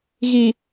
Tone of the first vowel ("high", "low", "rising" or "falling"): low